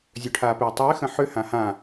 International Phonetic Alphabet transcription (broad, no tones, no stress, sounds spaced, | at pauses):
zʲ ø ʈʰ aː p eː tˤ ɪː x ə̃ ħ ʏ h ã h ã